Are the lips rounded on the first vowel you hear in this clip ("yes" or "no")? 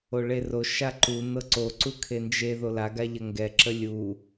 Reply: yes